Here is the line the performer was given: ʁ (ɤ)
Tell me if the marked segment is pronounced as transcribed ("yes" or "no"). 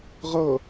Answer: yes